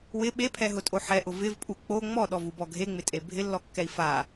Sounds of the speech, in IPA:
w ɪ ɓ e pʰ ɛ ɦ ʊ tʼ o ħ ɛ ʔ ʊ v ɪ v pʼ u k͡p o ŋ͡m ɔ ɗ ɔ v u b ɔ ɡʱ e ŋ͡m ɪ tʼ e bʱ ɪ lː ɔ kː ɛ i̯ f a

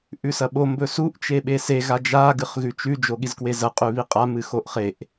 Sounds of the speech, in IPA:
ʔ ʉ s ɐ ɓ o m b ɵ s u ʔ t͡ʃ e ɓ e s e ɣ a d͡ʒ a ɡ ɨ χ ɣ ʉ t͡ʃ ʉ d͡ʒ o ɠ i z k w e z ɐ qʼ ʉ β i qʼ a m ɨ x o ʔ χ e ʔ

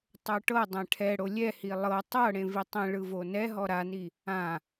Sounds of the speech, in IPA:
tˤ o ʈ ɤ dˤ ɛ̃ ʈʰ ɛ ɽ o lʲ ɛ h i lˠ ɤ tˤ ɤ ɽ ẽ v i tˤ ĩ ɭ ɯ v o n ɛ ɦ ɔ ɾ a n i | ã

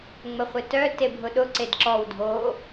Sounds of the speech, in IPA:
ŋ͡m ə χʷ ɪ t œ t e bʱ ʊ ɗ ʊ ǀ e d ǁ ɔ w dʱ o

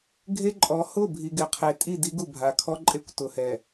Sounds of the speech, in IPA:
ɡʱ e˦ ǃʼ ɔ˨˦ h ʊ˦˨ bʱ i˨ ɡ ɪ˨ qʰ e˨ tʼ i˦˨ d i˦ ɡ u˨ bʱ a˨ kʰ ɔ˦ ǃʼ e˦ kʷ t ʊ˨ h ɛ˨

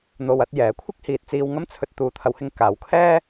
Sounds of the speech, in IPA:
n̪ o˨ w ɐ˧ t̚ j ɛː˨˥ kʷʰ ɪ˥ k̚ h iː˨ t̚ t͡s iː˧ w ŋ ɐ˥ m t͡sʰ ɵ˧ t̚ t̪ uː˨˧ t̪ʰ ɐ˨˧ w h ɪ˧ ŋ k aː˨˧ w kʰ ɛː˥

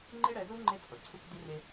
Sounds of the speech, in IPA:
ŋ͡ǃ e˦ ɽ ɛ˨˦ z u˦ ŋ͡ǃ e˦ t͡sʼ ɤ˨ ǀʰ u˦ k dʲ o˦ r e˦

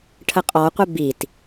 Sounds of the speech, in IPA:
ʈʰ ə qʼ ɔ qʷ ɪ b i t

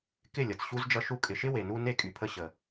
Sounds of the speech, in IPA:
k ɪ˦˨ lʲ ʌ˨ t͡s ɕ u˧ z d͡ʒ ʌ˧ ʃ u˧ kʼ ɪ˨ ʃ ɪ˦ w e˨ n u˧ n e˦˨ kʼ y˨ pʰ ə˧ ɕ ə˨

